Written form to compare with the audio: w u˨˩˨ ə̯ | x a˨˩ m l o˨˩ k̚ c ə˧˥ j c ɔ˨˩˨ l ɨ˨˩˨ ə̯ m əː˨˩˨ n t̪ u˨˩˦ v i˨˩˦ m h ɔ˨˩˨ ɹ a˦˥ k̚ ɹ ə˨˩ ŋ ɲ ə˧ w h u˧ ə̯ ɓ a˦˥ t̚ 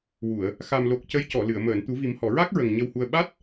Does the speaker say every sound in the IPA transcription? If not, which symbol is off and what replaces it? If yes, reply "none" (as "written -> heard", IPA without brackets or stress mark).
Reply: none